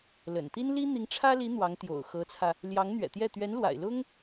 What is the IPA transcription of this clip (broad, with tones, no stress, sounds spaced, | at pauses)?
l ə̰˨˩ n t̪ i˥ n l i˥ n̪ i˧˥ ŋ ʈ͡ʂʰ ä˥ l i˧˥ n̪ w ɑ˧˥ ŋ t̪ j o̰˨˩ ʊ̯ x ɤ˧˥ t͡sʰ ä˧ | l j ɑ˧˥ ŋ n̪ ɥ ɛ̰˨˩ t̪ j ɛ˥˩ t̪ ɥ ɛ˧˥ n l w a̰˨˩ ɪ̯ l ʊ˥ ŋ